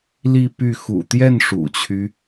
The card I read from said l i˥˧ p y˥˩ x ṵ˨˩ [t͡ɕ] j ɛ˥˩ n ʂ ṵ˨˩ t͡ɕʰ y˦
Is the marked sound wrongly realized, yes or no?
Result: yes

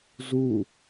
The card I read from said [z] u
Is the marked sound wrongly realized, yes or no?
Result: no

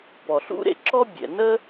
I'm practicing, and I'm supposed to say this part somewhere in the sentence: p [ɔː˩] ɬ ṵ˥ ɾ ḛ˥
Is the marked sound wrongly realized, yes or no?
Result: yes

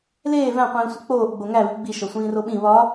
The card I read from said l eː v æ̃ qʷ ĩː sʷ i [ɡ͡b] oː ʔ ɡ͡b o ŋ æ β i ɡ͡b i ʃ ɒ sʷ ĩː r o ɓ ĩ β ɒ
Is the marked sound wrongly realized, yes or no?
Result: yes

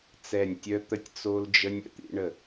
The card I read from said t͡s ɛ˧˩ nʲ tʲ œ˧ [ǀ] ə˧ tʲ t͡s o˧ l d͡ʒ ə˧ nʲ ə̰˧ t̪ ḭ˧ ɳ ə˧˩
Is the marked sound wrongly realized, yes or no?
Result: yes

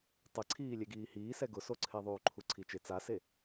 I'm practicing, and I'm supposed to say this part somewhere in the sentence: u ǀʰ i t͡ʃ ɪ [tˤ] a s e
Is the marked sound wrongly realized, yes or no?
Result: yes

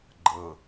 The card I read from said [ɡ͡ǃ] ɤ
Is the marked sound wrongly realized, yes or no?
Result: no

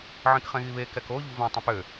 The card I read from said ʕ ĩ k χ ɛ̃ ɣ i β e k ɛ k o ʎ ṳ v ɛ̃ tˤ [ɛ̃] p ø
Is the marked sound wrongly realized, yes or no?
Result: yes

